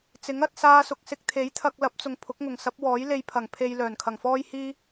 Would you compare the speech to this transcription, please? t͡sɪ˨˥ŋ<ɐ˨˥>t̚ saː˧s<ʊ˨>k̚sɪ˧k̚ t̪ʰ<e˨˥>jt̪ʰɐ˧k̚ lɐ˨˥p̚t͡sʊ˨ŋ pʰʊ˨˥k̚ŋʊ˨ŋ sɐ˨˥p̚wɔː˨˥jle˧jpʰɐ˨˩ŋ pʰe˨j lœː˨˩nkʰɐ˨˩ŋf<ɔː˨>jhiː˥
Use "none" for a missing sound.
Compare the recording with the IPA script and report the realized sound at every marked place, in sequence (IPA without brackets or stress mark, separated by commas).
ɐ˧, ʊ˨, e˨˥, ɔː˥